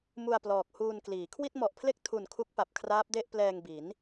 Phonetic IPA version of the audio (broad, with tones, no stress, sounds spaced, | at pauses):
m u˧ a̯ p l ɔː˨˩ k̚ h uː˧ n k l iː˩˦ kʰ w i˥˩ t̚ m ɔ˨˩ ʔ pʰ l e˥˩ k̚ tʰ u˨˩ n kʰ u˦˥ k̚ p a˨˩ p̚ kʰ r aː˦˥ p̚ d e˥˩ ʔ p l ɛː˧ ŋ b i˩˦ n